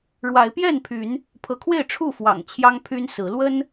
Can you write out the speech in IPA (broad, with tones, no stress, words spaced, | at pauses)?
ɻwa˨˦ɪ̯pjɛ˥˨npʰy˨˦n | pʰɤ˨˦kʰwe˥˨ɪ̯ʈ͡ʂʰu˥˨ fwɑ̰˨˩ŋ t͡ɕʰjɑ˦ŋpʰy˦n sɹ̩˨˦ lwə˦n